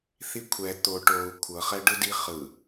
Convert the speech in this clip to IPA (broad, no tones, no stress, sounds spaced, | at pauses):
θ i kʷʰ ɛ t̪ o ʈ o u̯ kʷʰ ɤ χ ɛ ɖ ɯ d i χ ɯ